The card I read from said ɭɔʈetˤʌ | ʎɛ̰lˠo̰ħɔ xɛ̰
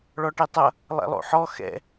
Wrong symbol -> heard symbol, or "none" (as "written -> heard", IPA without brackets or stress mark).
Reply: ʎ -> lˠ